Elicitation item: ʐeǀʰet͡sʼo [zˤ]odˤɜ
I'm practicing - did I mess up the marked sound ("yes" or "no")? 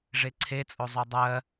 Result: no